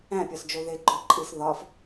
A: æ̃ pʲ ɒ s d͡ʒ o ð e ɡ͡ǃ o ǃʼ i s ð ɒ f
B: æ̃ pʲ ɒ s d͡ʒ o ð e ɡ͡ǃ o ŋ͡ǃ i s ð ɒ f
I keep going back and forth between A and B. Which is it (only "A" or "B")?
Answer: A